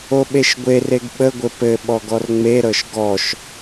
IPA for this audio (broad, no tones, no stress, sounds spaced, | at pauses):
o ɓ e ʃ ɡʷ e r e ɡ ɓ ə ɡʷ ɘ p ɘ ɓ ɔ ɡ ɔ r ŋ͡m e ɾ ɤ ʃ ɡ ɔ ʃ